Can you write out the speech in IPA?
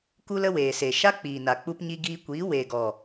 ku˦lə˦weː˨se˨ ʃa˦k͡piː˨na˨ k͡pu˧pɲi˧ɡiː˧ kʷiː˨˦ weː˨ɡɔ˨

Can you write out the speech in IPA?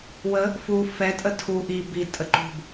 wə | fu fɛ tʼətʰu ʔi bi tʼəǃṳb

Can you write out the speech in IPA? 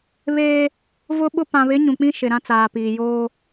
βeː˦ | vʊ˦ɓʊ˦ pã˨βɪ˨˦ ɲũ˨k͡pĩ˦ ʃɪ˨ ɾã˦t͡saː˨piː˨ joː˦

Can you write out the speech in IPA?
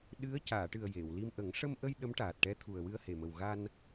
ɗɨ˧˥ə̯caː˨˩˨ʈɨ˨˩ə̯ je˨˩˨w li˧mʔə˨˩˦ŋ ʂə˧mʔə˧j ɗə˧˥mʈaː˨˩t̚ʈɛ˧˥t̪ʰu˨˩ə̯ wɨ˧ə̯he˨˩mə˨˩w ɣa˧n

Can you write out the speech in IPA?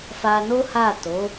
fa˧no˦ha˦˨to˨˦

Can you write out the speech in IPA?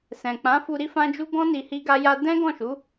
sɛ̃˨k͡pã˨˦fu˧ ɾi˦fã˦d͡ʒu˦ ɡɔ̃˦ ni˧hi˦ɡa˦ja˦ dɛ̃˦ɡɔ̃˦˨ʃu˨˦

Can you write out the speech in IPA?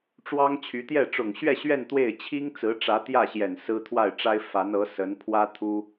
ʈ͡ʂwɑ˥ŋt͡ɕʰy˧˥t̪jɛ˥˩ ʈ͡ʂʊ˨˩ŋɕɥɛ˥˧ɕɥɛ˥˧n t̪we˥˩ɪ̯ t͡ɕʰi˥ŋ t͡sɹ̩˧˥ʈ͡ʂä˧˥t̪jä˥˩ɕjɛ˨˩n sɹ̩˥ t̪ʰwa˥˩ɪ̯ʈ͡ʂa˥ɪ̯ fa˧˥nɤ˧˥ sə˧˥npʰwä˥ t̪ʰu˥

